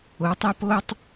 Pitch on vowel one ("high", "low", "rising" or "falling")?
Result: rising